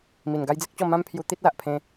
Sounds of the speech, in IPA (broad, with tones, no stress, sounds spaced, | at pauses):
m i˨˩ n ɡ a˦ j d͡z e˦ k̚ t͡ɕ ɔ˥˧ m ã˦ m pʰ j u˧ t̪ i˦ t̚ l a˨ ʔ pʰ ẽ˧